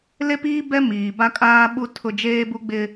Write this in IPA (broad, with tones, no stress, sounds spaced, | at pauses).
l e˦ p iː˦ b ɛ˦ m iː˨ b a˦ kʼ aː˦ ɓ u˦ tʰ ʊ˦ d͡ʒ eː˦ b u˦ ɡ͡b ɪ˦